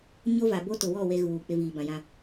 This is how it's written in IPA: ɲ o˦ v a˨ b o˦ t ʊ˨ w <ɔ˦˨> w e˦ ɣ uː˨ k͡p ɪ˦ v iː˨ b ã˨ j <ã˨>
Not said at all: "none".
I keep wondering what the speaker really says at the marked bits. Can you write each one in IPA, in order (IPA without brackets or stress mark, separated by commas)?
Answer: ɔ˦˨, ã˦